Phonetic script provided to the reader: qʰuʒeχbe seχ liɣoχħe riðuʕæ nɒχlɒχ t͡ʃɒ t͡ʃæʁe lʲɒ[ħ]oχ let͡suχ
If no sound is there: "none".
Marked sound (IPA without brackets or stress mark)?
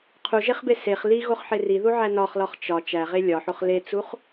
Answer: ħ